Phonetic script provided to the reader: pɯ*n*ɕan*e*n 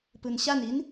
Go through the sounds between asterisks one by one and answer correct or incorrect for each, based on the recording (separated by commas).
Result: correct, incorrect